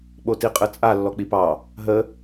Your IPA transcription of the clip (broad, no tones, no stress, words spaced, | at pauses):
ɓotiqʼɯt͡sʼa lːɔk͡pipɑ | ɦə